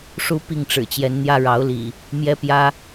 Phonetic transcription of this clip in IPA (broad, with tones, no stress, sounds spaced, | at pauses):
ʂ u˦ p i˥˨ ŋ ʈ͡ʂ ɻ̩˨˩ t͡ɕ j ɛ˨˦ n n̪ j ä˦ ɻ ɑ˨˦ ʊ̯ l ḭ˨˩ | m j ɛ˦ p j ä˦